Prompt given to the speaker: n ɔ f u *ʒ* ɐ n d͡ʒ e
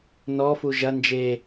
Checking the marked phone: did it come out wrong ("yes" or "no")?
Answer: no